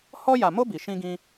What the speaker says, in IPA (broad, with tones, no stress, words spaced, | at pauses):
hɔ˦ja˧mo˦ bi˧ʃĩ˦ɡĩ˦